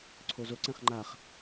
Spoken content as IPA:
ǀʰozoǀɛ̃χ ŋ͡ǃaχ

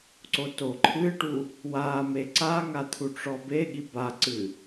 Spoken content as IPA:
ǀotoǃʰɨʈu | wame ǀaŋa t̪ʰuʈ͡ʂɔbeɠi baǀɨ

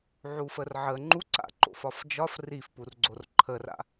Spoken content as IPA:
ʕufərʕə ŋ͡ǃuǀa̰ǃo̰fɒf d͡ʒɒf rifpurɡ͡ǀor ǃʰəra̰

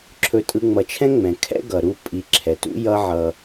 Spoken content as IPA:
ǁʰɵ˧tʼɯ˧ŋ͡mʌ˨˦t͡ʃʰɛ̃˦ ŋ͡mɛ̃˨ kʰɛ̰˦ɡʌ˨ ɾu˧ pʼi˨˦ǁʰɛ˨tṵ˦jʌ˦ ʕʌ˧

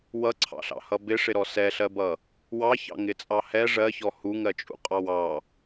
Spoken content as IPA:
wʌǀʰɑ̰ɬɑ̰hʌ bɪʂɪɾɔ sɛɬɜbʌ | wɑçɑ̰ŋɪt͡sʼɑ hɛ ʐɜçɔ huŋɜt͡ʃʼṵqʼɑw ɑ

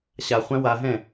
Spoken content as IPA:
ɕaχʷæ̃ waɦɛ̃

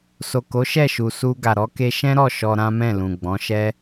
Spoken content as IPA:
so˨ko˨˦ʃɛ˦˨ ʃu˨su˧ ɡa˨ɾɔ˨˦ ke˧ʃɛ̃˦ɾɔ˦˨ ʃɔ˧ɾã˦mɛ̃˦˨ lũ˨ɡ͡bɔ̃˨˦ʃɛ˦

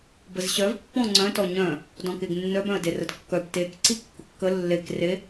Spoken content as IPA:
bəzɕœv pːɔ̃ŋ͡ǀœ̃tɔ ɲœ̃ | dɔ̃keɡnːœbœ̃ə̯ derədkːœb tekǀi kːʊkːə lːek re

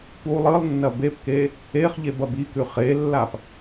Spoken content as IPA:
pu lˠɨlˠnːɐ bepke | eχʎeb ɐbikʉ χelːap

